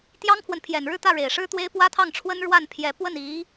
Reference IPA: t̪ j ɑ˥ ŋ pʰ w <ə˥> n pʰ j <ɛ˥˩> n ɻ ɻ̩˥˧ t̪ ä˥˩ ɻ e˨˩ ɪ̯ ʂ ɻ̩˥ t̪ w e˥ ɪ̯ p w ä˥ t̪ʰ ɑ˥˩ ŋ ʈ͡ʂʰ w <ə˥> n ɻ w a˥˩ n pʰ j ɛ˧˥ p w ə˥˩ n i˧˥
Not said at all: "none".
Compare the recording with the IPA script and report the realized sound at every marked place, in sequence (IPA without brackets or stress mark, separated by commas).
ə˨, ɛ˨˩, ə˥